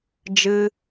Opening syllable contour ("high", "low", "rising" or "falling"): high